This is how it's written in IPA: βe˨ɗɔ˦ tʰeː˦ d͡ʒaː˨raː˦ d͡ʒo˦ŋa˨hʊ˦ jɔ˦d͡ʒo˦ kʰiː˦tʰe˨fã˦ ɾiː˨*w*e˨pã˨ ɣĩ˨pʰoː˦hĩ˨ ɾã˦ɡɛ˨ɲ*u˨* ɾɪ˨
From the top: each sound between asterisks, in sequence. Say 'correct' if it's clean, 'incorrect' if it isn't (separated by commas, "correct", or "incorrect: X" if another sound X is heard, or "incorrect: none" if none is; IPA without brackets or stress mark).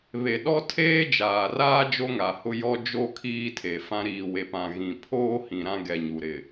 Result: correct, correct